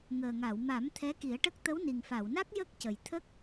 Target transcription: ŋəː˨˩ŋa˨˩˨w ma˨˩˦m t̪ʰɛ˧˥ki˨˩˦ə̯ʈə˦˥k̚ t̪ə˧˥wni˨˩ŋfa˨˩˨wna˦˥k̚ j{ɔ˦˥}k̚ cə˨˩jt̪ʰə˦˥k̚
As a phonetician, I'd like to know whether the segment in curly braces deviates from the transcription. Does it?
yes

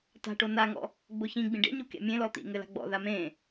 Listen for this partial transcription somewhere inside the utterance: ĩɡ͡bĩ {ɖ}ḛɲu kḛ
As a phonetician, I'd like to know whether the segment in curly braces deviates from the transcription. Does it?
no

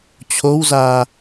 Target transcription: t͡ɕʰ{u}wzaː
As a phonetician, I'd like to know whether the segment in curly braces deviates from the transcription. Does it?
yes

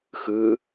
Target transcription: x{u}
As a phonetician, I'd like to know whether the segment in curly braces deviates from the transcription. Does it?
yes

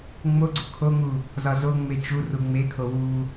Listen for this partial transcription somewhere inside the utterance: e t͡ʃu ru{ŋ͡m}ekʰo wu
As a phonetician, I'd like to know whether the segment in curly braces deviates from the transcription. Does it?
no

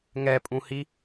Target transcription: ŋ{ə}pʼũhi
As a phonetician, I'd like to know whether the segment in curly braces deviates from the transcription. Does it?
yes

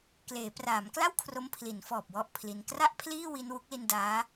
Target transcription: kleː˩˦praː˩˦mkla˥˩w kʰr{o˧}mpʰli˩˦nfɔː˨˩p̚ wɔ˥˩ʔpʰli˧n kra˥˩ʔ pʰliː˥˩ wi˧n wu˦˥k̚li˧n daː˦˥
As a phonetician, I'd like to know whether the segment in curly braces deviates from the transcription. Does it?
yes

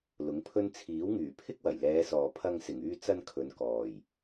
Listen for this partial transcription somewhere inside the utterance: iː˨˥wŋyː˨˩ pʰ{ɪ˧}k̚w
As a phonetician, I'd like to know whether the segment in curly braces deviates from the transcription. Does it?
yes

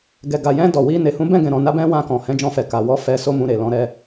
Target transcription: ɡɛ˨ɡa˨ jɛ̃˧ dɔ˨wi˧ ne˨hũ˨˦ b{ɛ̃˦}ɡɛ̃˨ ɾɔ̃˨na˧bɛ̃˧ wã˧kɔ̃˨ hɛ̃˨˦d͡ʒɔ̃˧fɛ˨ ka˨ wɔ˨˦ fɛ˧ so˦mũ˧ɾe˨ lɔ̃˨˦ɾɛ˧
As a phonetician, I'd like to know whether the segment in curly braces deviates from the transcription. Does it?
yes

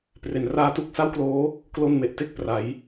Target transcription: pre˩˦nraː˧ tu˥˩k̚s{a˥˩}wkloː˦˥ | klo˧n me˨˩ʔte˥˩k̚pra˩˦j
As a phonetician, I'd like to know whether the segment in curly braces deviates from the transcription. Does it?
no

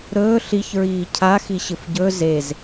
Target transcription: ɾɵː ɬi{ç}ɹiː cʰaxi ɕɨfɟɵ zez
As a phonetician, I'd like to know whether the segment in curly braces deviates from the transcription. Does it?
no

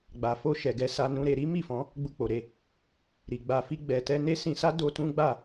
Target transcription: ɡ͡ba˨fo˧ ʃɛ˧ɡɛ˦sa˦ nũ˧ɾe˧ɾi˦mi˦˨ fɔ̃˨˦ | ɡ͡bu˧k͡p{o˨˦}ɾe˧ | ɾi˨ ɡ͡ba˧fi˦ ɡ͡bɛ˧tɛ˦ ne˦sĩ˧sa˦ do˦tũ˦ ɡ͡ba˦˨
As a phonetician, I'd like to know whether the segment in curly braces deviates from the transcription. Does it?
yes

